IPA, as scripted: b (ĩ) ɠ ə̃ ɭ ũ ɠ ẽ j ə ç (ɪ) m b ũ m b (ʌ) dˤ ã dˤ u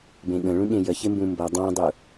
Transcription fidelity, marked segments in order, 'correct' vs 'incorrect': incorrect: ẽ, correct, correct

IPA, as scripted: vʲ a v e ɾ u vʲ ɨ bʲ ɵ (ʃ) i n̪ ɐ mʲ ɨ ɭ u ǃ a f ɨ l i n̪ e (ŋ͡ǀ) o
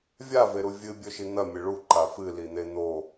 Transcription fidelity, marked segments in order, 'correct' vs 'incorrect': correct, incorrect: n̪

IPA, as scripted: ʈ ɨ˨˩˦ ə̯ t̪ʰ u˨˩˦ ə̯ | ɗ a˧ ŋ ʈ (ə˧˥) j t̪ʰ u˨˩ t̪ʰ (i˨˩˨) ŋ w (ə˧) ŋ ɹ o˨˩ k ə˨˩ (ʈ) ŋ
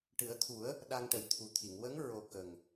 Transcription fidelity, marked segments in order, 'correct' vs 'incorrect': incorrect: ə˨˩, correct, incorrect: ə˧˥, incorrect: none

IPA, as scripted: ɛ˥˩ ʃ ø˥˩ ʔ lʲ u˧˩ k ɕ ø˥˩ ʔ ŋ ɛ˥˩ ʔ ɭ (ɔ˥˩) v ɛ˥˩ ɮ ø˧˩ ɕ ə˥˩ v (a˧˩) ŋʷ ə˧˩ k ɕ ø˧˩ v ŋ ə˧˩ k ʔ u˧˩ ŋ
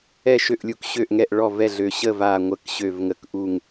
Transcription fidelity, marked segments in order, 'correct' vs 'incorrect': correct, correct

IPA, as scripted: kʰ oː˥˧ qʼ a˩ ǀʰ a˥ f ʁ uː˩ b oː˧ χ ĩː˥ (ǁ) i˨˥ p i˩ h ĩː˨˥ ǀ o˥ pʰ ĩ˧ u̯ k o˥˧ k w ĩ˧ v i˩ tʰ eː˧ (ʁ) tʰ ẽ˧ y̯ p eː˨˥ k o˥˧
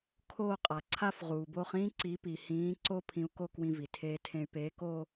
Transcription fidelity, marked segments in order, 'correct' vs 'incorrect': incorrect: ǀ, incorrect: none

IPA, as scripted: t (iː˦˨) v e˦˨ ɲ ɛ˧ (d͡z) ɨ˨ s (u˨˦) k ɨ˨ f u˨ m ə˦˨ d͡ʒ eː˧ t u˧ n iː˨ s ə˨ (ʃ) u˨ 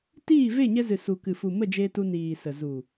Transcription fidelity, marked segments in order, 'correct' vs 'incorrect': correct, incorrect: z, incorrect: u˨, incorrect: z

